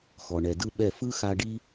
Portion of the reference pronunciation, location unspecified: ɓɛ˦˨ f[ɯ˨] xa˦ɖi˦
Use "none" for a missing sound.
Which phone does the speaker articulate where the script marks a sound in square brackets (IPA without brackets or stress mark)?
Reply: ɯ˦